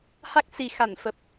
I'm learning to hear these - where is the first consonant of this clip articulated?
throat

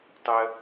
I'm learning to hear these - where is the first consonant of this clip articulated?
tongue tip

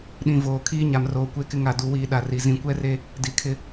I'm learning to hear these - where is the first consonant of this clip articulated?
tongue tip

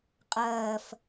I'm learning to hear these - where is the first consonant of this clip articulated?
uvula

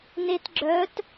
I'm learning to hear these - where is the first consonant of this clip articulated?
tongue tip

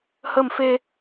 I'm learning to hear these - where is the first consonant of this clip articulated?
throat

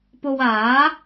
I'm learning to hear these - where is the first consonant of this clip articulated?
lips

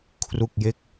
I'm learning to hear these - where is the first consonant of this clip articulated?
velum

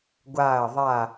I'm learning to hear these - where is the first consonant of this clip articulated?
velum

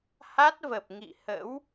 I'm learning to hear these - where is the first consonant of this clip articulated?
throat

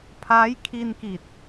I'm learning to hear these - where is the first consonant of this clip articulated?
lips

